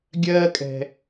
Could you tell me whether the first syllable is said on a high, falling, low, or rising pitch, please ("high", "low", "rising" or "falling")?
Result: high